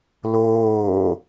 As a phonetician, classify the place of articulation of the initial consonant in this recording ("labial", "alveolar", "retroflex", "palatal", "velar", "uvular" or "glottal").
alveolar